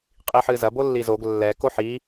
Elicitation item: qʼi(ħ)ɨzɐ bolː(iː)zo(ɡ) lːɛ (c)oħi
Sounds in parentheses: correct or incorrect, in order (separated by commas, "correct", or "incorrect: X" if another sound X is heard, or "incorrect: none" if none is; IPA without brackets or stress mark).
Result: correct, incorrect: i, correct, incorrect: k